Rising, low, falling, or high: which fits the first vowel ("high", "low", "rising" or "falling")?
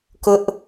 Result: high